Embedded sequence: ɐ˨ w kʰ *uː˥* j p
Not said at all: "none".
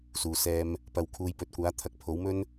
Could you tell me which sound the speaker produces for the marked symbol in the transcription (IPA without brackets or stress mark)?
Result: uː˨˧